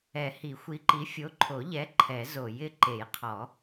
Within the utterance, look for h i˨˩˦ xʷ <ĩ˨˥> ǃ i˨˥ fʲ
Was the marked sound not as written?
yes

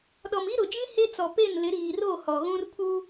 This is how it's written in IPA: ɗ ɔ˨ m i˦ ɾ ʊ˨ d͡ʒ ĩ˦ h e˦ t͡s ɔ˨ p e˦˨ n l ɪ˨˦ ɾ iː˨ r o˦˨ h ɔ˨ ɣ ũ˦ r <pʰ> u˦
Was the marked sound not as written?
no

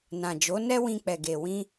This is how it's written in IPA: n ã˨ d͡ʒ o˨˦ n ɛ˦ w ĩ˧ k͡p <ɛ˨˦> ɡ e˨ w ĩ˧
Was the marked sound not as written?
yes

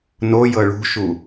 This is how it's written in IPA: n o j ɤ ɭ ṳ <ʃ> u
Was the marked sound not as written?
no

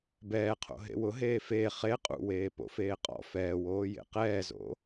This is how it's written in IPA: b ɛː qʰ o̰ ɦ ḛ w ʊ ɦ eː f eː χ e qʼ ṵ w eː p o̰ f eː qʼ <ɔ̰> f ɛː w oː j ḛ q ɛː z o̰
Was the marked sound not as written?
no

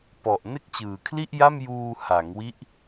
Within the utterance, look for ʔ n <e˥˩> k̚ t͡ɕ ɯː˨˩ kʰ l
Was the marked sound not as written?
no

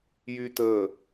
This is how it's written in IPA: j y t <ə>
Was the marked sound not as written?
no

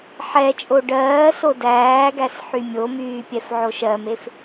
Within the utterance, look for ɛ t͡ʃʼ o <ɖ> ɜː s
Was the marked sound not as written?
no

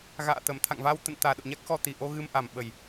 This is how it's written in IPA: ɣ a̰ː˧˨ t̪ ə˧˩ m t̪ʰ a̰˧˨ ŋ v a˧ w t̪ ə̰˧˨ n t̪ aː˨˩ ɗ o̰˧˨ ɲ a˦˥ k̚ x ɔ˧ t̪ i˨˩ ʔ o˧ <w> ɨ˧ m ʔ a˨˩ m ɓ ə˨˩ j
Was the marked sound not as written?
yes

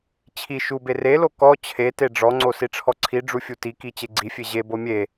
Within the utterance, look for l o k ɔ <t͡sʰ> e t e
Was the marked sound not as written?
yes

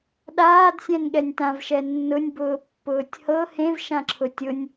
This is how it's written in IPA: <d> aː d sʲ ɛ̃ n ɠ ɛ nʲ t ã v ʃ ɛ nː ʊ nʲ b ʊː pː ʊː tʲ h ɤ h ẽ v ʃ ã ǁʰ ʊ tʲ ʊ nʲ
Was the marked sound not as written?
yes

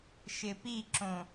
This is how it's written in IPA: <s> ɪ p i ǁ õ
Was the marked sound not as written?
yes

